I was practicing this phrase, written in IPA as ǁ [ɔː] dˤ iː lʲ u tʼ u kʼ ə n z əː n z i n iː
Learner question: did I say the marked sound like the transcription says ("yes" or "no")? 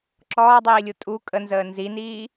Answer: yes